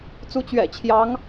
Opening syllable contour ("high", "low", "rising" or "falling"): rising